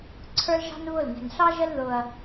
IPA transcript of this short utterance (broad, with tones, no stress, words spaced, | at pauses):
ǀʰə˞˦lʒɑ̤˦nβʊ˦˨l nɛ̤˨nɬɑ˦ʒə˦l ðʊ˦ɐ̯